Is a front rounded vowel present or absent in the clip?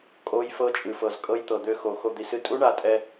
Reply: present